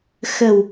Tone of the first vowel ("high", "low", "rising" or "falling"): low